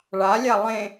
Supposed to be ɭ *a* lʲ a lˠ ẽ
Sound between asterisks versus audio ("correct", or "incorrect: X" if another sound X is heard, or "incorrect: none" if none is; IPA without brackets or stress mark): correct